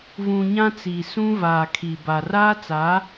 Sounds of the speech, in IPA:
v ũ˨ ɲ ã˦ t͡s i˨ s ũ˦ v aː˨ kʰ i˨ b a˨ r aː˦ t͡s a˨˦

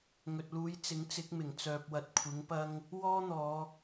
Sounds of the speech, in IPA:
ŋ ɵ˨ t̚ l uː˨˧ j t͡s ɪ˨˥ ŋ t͡s ɪ˨˥ k̚ m ɪ˨˩ ŋ t͡s œː˨ p̚ w ɐ˨ t̚ kʷʰ ɪ˨˥ ŋ p ɐ˥ ŋ | w ɔː˥ n̪ ɔː˨˧

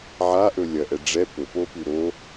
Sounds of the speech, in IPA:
ʕ a ʔ ɵ lʲ ɐ ʔ ɛ ɖ͡ʐ ɛ p ɵ p o p ʉ ɾ o

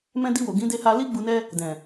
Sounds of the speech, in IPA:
m ɛ̃˧ d i˧ w o˨ ɡ ĩ˨˦ d e˧ h a˧ l i˦ ɡ͡b u˧ n ɛ˦ | d ɛ̃˨

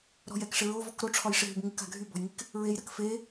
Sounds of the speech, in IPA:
ɾ ɔ̤ j ɛ k ʂ ɪ ɹ o v ɔ k ɾ o ʈ͡ʂʰ ɒ j ʂ ɪ ɦ y b ŋ ɪ k a̤ ɡʱ y b ɔ̤ j ŋ i k | ɹ e j ɾ ɐ k f e

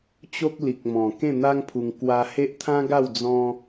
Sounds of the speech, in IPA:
t͡ɕ o˦ k̚ l i˨ k̚ m ɔ̃˨˩ k ẽ˥˧ n̪ a˦ ŋ pʰ u˧ ŋ k w a˧ h e˦ ʔ t̪ʰ ã˦ ɡ a˥˧ w d͡z ɔ̃˦

